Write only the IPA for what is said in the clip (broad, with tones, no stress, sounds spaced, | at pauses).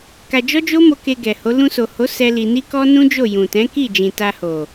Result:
k a˧ d͡ʒ ɔ˦ d͡ʒ o˦ m o˧ k e˧ ɡ ɛ˨ h o˨˦ l ũ˧ s o˨ h o˨˦ s ɛ˦ l i˧ n i˦ k ɔ˦ n ũ˦ d͡ʒ o˦˨ j ũ˨ t ɛ̃˨˦ k i˦˨ d͡ʒ ĩ˨ t a˧ h o˨